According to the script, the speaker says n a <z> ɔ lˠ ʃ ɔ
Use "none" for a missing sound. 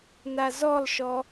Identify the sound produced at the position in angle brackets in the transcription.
z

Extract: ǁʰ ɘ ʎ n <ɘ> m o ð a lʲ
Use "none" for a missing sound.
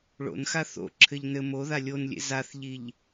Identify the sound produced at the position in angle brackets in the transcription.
ɘ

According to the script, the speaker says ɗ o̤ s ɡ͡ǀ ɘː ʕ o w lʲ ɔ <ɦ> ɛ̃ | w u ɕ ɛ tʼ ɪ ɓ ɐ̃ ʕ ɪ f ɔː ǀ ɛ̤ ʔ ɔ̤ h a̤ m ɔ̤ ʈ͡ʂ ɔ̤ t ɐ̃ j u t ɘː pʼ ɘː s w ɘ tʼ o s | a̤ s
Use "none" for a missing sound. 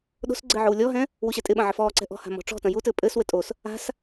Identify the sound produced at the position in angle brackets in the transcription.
ɦ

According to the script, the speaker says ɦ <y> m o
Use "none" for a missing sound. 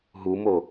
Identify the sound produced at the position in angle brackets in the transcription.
u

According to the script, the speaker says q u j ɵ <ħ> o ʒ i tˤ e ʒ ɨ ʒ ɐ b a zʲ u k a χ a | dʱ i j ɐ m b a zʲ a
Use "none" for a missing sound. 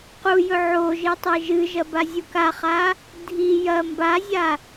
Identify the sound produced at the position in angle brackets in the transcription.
ʕ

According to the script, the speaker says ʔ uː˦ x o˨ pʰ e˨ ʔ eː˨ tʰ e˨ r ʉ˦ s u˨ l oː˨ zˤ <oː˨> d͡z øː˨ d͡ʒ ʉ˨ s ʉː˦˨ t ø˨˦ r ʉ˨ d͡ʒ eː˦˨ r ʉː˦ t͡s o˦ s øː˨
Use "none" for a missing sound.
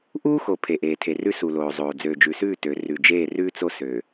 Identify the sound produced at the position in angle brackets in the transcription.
oː˨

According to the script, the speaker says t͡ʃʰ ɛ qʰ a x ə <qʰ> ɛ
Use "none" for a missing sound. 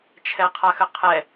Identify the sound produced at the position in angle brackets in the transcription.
qʰ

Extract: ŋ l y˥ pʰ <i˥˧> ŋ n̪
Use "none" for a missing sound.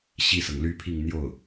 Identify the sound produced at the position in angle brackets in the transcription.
i˥˧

